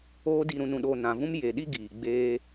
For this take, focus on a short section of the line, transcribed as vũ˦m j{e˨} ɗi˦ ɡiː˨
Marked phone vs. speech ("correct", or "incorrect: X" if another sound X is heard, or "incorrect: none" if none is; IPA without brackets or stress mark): correct